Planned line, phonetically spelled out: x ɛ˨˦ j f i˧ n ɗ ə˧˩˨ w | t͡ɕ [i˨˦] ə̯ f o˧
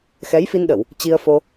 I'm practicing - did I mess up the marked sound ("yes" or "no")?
yes